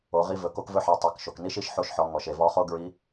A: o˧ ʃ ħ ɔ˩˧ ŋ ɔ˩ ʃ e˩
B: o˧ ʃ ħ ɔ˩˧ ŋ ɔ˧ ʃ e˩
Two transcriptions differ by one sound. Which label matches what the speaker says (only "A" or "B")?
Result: A